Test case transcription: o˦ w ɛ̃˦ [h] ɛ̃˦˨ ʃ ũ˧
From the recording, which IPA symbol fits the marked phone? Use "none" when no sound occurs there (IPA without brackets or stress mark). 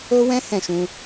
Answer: h